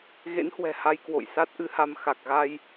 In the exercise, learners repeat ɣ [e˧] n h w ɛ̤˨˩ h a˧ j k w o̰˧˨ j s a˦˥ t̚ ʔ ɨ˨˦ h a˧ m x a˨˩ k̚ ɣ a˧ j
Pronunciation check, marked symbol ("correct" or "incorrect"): incorrect